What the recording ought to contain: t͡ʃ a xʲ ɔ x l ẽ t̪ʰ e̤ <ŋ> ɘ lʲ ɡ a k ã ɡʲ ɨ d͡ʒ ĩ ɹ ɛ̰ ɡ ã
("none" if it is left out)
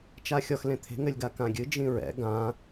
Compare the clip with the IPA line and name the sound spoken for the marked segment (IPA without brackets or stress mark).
ŋ